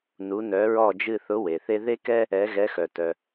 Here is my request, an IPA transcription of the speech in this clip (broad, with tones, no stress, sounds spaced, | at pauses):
n u˧˥ n œ˧˥ ɹ ɔ˥˧ d͡ʒ ɨ˥˧ θ ʊ˧˥ w e˨ θ e˥ ð e˥ k ɛ˥ | ɛ˧˥ ɣ ɛ˧˥ x œ˨ t œ˨